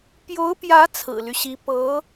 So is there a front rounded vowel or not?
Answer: yes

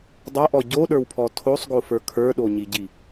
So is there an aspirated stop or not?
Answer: yes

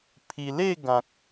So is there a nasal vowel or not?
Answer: yes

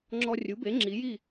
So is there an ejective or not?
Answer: no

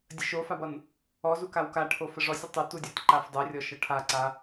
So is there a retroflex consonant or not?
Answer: yes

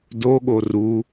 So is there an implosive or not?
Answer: yes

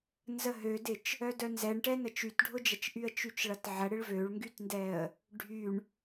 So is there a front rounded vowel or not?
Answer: yes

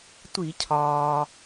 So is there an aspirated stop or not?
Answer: yes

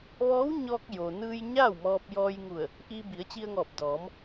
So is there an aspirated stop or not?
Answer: no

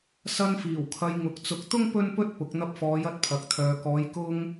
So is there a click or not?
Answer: no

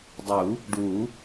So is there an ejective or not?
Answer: no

